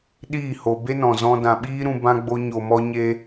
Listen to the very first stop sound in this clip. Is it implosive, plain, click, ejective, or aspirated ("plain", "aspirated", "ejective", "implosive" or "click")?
implosive